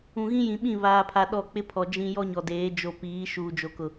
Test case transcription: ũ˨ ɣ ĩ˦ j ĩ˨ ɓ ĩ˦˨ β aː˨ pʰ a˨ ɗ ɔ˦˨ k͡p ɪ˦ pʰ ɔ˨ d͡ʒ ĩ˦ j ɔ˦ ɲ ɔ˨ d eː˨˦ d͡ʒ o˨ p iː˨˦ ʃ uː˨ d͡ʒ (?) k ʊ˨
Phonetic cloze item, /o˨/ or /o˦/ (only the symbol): o˨